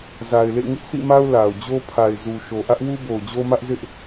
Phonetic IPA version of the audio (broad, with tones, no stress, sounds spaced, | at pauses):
z a˨ ɪ̯ l ḛ˦˨ ŋ ɪ˦ ʔ s ḭ˦˨ m a˦ ʊ̯ l a˨ ʊ̯ d͡ʑ o˦ pʰ a˨ ɪ̯ z u˨ ʃ o˨ ʔ ä˦ ʔ w u˦ b o˨ ʊ̯ d͡ʑ o˦ m ä˦ ʔ z ɪ˦ ʔ